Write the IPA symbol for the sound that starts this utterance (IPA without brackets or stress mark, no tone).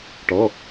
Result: ʈ